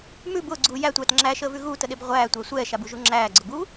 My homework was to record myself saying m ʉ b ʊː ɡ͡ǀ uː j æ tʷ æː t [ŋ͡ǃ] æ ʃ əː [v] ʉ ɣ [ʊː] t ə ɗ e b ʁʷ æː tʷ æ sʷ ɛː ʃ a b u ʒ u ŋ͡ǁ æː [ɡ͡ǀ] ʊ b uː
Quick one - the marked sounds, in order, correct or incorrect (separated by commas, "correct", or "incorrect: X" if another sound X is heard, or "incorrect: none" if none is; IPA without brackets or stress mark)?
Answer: incorrect: ŋ͡ǁ, correct, incorrect: uː, correct